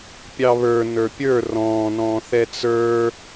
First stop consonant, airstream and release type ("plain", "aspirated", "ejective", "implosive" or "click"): plain